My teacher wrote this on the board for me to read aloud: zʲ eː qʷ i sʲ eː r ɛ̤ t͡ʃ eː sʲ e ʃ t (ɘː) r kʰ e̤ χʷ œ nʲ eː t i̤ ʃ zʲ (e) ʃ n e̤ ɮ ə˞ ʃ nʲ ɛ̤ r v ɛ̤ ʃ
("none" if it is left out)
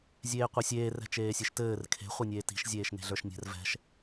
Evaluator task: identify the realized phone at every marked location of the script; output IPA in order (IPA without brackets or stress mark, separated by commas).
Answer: ɘː, eː